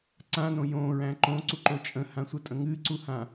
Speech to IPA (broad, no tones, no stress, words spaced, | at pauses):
ǀãnõ jõɹæ̃ ǃõǀuǃo t͡ʃʼə̃hãsʷətʼə̃ ŋɨǀuhã